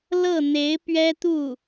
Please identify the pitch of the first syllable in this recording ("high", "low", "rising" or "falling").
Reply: falling